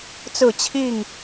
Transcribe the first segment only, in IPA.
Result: t͡s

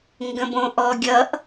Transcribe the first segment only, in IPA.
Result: ŋ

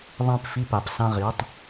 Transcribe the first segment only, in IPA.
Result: ðˤ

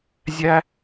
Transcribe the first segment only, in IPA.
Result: zʲ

